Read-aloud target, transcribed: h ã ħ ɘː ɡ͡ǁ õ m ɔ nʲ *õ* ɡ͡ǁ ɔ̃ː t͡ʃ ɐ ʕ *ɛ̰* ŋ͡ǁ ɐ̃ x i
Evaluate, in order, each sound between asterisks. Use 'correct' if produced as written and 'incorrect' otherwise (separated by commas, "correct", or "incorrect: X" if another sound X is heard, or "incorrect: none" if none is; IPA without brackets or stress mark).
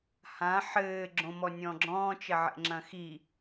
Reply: incorrect: ɔ̃, correct